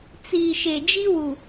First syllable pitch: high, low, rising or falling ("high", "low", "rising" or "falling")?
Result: low